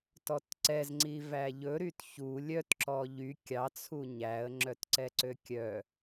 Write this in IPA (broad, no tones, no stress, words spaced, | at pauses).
tɔtǀɛzŋ͡ǀi væʎɵɾyt çu lʲœtǁɔ ʎy kʲɑt͡sʰu ɲæə̯ŋ͡ǁœtǀɛǀø kʲœ